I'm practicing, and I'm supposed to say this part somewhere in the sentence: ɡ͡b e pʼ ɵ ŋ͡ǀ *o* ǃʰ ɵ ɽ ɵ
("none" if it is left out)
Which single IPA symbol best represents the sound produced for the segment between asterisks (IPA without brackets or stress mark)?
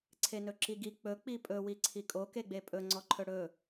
ɔ